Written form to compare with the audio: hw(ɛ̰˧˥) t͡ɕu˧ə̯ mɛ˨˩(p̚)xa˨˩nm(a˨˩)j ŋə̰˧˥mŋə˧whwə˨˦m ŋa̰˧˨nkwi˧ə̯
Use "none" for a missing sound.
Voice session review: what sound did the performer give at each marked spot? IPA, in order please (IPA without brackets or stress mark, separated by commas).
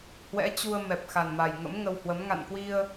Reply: ɛ̰˧˥, p̚, a˨˩